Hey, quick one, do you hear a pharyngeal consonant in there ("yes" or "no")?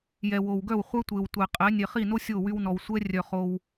no